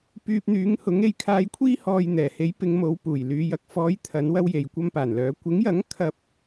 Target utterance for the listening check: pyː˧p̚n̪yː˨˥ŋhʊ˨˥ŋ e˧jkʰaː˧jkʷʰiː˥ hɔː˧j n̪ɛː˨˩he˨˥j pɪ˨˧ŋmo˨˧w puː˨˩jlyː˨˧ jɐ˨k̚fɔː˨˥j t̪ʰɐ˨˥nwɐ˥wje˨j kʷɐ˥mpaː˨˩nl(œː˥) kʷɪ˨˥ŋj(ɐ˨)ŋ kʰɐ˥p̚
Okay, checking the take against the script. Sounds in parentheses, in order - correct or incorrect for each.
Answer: incorrect, incorrect

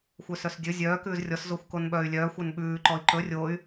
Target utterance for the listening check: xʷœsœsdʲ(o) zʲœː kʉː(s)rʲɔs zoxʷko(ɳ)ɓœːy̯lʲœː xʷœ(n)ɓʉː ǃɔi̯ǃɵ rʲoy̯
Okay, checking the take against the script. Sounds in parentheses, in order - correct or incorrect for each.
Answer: incorrect, incorrect, incorrect, correct

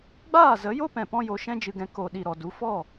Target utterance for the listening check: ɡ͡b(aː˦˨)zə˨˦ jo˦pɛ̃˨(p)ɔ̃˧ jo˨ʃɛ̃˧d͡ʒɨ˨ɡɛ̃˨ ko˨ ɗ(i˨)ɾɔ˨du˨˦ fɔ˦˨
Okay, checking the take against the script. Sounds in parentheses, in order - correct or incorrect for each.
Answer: correct, correct, correct

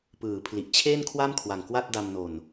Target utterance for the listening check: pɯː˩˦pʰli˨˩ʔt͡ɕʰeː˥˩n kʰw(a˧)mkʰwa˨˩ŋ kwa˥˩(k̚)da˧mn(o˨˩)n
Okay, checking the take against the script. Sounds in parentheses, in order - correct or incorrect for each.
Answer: incorrect, incorrect, correct

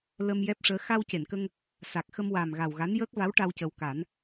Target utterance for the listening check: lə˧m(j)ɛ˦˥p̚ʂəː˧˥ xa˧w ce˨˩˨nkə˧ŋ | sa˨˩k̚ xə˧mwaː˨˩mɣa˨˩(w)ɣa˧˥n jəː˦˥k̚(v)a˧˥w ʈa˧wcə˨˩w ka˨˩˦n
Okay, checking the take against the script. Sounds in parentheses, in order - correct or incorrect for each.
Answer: correct, correct, correct

